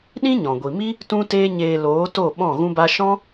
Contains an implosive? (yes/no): yes